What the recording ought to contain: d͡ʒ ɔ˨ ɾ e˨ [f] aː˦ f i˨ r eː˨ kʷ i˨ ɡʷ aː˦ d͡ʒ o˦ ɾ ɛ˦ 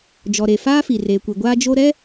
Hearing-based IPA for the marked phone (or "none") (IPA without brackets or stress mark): f